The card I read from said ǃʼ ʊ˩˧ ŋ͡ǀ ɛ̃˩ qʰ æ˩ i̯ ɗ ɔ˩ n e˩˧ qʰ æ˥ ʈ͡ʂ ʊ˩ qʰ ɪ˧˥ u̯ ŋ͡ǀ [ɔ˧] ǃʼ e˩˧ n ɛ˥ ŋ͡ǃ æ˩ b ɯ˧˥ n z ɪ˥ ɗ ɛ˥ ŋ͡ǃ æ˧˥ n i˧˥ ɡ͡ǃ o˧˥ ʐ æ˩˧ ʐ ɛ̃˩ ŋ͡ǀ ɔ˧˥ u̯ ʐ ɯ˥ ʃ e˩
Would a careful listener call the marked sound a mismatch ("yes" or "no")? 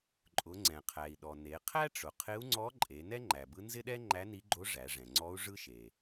yes